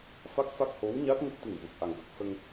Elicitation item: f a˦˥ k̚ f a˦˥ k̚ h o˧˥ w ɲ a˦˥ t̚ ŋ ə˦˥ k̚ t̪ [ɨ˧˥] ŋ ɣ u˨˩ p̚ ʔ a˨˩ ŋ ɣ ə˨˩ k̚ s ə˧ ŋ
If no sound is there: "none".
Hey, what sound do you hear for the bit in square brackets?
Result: ɨ˨˩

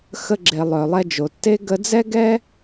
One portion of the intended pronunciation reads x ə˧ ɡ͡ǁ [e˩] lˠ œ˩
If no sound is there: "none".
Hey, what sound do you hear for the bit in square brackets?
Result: e˩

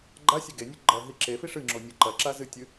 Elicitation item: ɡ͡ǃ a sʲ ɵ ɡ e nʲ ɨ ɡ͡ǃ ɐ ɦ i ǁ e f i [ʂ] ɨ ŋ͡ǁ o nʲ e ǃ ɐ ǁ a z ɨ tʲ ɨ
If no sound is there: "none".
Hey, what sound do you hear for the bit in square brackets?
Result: ʂ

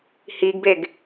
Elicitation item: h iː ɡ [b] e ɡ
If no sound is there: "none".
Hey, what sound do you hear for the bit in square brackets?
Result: b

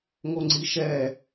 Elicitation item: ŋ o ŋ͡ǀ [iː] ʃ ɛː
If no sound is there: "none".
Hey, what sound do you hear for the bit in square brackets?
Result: i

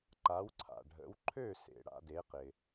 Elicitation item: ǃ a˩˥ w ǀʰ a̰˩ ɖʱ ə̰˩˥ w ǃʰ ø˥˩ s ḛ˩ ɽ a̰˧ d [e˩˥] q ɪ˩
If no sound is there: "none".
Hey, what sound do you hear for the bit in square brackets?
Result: e˩˥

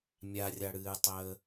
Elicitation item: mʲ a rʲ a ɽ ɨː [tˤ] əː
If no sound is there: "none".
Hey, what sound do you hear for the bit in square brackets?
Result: tˤ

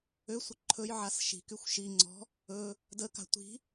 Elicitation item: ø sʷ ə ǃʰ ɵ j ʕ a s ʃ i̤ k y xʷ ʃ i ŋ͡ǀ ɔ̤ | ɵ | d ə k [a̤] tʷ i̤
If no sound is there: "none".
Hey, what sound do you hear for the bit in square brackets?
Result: a̤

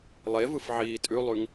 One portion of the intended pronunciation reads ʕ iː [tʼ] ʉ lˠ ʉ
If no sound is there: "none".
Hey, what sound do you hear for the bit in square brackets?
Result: tʼ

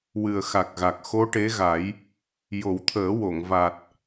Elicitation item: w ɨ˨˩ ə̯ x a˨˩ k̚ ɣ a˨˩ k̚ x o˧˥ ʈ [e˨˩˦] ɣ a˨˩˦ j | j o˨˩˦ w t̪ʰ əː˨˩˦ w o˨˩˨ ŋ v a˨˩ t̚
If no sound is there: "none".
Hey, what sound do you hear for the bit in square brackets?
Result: e˧˥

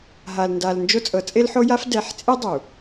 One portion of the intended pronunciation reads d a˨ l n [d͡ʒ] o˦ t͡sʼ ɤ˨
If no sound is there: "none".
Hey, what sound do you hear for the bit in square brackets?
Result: d͡ʒ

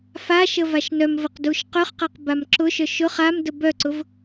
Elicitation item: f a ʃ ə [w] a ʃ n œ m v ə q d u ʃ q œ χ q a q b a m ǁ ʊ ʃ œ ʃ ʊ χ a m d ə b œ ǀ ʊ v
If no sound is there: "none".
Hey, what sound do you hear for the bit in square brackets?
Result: v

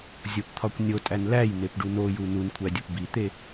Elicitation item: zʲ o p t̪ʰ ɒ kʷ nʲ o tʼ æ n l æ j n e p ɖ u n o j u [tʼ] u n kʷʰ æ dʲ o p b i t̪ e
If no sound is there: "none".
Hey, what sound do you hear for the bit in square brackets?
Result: n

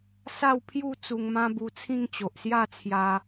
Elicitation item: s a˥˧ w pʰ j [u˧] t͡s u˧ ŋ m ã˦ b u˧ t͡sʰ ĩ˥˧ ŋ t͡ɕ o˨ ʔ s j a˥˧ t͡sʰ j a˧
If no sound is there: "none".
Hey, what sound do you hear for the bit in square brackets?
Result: u˥˧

